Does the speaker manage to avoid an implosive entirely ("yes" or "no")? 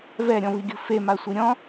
yes